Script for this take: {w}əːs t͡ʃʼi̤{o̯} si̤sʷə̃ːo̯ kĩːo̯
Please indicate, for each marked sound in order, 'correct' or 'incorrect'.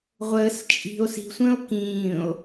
incorrect: ʁʷ, correct

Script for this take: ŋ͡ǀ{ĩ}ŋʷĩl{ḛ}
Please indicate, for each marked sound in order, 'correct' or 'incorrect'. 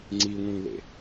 incorrect: i, correct

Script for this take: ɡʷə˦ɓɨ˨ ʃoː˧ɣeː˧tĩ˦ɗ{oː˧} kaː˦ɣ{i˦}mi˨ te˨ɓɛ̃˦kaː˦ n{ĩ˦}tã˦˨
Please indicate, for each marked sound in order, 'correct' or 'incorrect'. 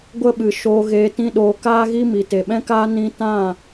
correct, correct, incorrect: ĩ˧

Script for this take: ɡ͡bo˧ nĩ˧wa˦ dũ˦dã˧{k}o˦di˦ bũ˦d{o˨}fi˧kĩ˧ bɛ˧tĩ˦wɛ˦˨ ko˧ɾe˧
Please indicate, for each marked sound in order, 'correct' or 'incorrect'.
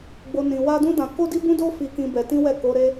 correct, incorrect: o˦

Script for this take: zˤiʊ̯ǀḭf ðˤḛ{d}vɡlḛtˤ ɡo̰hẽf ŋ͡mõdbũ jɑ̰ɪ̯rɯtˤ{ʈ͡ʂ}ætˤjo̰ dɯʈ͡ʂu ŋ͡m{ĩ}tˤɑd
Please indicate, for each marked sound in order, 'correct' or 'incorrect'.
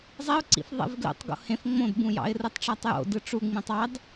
incorrect: none, correct, correct

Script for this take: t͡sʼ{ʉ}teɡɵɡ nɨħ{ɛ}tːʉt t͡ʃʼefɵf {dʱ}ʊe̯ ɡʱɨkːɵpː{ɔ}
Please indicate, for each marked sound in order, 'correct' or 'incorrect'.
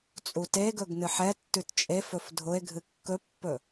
incorrect: u, correct, correct, incorrect: ɵ

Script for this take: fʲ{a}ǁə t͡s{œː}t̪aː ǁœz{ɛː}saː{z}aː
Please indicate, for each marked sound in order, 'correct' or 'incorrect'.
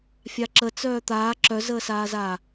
correct, correct, incorrect: əː, correct

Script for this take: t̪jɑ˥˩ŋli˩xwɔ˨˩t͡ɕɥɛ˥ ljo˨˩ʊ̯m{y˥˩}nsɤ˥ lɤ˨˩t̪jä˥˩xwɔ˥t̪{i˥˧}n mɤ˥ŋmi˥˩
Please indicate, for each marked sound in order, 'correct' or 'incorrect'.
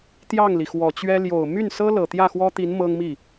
correct, incorrect: i˧˥

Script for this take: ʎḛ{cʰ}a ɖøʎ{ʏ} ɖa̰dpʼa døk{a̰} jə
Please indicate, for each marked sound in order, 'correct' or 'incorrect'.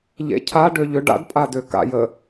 correct, correct, correct

